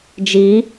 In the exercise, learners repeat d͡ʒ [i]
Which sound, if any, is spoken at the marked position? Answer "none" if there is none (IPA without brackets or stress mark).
i